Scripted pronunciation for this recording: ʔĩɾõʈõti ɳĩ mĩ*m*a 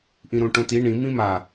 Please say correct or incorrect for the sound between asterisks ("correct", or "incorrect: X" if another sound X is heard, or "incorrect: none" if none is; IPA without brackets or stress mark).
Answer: correct